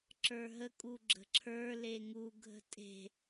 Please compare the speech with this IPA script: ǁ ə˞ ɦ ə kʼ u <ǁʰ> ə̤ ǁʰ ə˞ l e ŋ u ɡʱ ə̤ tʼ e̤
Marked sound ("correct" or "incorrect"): incorrect